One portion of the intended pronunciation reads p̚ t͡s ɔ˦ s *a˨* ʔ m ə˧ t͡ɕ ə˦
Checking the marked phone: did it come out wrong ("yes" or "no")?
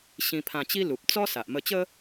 no